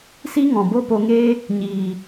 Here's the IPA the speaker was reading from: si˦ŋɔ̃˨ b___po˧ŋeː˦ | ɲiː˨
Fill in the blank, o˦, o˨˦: o˦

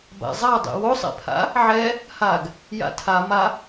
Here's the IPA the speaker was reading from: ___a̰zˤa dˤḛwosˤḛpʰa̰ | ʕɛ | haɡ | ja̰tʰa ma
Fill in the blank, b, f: b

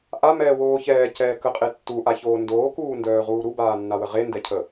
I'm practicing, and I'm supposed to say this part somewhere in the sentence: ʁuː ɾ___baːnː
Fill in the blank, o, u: u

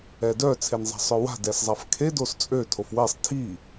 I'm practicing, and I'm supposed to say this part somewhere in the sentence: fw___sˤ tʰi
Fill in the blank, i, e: e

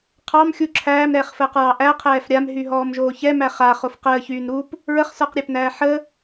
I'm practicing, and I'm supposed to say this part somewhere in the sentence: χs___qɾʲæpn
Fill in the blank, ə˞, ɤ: ə˞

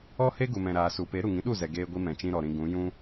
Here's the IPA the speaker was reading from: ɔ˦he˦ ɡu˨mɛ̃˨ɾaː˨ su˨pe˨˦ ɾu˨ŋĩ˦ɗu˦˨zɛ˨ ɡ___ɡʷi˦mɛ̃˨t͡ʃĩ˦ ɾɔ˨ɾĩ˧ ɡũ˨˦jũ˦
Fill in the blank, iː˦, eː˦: eː˦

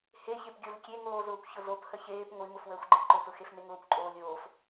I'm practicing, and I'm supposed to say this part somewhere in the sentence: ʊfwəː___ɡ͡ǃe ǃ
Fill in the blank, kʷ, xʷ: xʷ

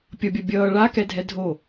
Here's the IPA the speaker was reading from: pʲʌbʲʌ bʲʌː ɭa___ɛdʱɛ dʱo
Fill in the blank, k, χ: k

